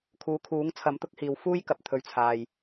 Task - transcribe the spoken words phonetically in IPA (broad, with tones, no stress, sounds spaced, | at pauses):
kʰ uː˨ kʰ uː˨˥ ŋ t͡sʰ ɐ˨˥ m t̪ ʊ˨˥ k̚ h iː˨ w f uː˥ j k ɐ˨ p̚ t̪ʰ ɵ˨˧ ɥ t͡sʰ aː˨ j